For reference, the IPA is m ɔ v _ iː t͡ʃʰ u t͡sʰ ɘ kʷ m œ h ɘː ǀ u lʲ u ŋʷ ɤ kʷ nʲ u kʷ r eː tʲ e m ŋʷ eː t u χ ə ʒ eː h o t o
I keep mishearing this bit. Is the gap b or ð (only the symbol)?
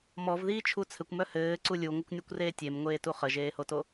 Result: ð